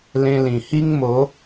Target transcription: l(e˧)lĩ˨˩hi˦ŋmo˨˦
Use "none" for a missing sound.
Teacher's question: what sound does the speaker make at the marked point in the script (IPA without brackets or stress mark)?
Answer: ẽ˧